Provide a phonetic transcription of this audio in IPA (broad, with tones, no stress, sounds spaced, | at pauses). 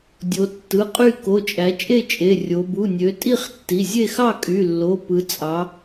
dʲ o˩˧ tː ɯ˩˧˩ qʼ y˥˨ k o˩˧˩ t͡ʃʼ æ˩˧ t͡ʃʼ e˥˨ t͡ʃʼ e˩˧˩ rʲ o˩˧ b u˩˧˩ nʲ ø˩˧ tʼ i˥˨ χ tː i˩˧˩ zʲ e˥˨ x ɑ˥˨ kʼ y˩˧˩ lː o˩˧˩ p ɯ˩˧ t͡sʼ ɑ˩˧